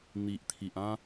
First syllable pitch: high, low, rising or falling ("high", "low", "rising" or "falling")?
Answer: low